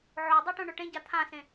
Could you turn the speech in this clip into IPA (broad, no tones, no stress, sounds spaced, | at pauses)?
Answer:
ʕ o dˤ ɛ ʈ õ ɳ o ʈ ẽ ɟ a t̪ʰ ã s ẽ